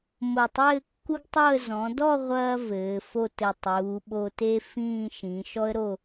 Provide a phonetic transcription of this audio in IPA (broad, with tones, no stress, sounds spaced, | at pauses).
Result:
m o˧˩ tˤ ɘː˥˧ kː u˥ ɡ tˤ o˥˧ ə̯ z ɔ̃˩˧ d ɔ˥˧ ʁʷ ɐː˧ v ɘː˩˧ f o˥˧ t ɘ˧˩ tˤ uː˩˧ ɓ o˧ t e˥ f ĩː˥˧ ʃ ĩ˩˧ ʃ ɔ˥ ə̯ ɾ o˥˧